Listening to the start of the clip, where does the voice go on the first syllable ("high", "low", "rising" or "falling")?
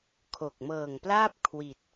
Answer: low